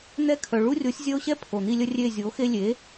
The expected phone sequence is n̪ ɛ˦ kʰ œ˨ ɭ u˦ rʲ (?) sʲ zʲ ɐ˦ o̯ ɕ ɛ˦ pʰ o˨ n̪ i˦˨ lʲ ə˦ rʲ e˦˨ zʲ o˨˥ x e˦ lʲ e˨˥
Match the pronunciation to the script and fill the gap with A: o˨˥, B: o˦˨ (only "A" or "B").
A